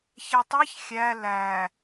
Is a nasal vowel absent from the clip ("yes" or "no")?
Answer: yes